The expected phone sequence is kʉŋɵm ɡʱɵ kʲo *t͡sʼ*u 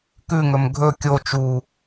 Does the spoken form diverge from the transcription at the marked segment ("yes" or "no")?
yes